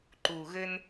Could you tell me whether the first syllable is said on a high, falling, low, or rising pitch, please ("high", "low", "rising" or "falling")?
low